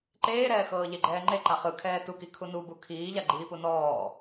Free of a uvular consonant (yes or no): no